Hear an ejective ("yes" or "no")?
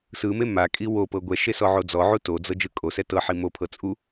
yes